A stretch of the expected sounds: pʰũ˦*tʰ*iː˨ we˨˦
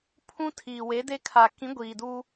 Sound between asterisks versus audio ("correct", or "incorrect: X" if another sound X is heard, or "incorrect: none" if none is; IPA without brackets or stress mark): correct